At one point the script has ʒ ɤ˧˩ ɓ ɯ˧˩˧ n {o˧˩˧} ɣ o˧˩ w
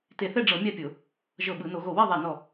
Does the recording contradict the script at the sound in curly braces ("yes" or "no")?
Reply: no